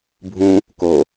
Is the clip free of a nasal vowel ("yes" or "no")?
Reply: no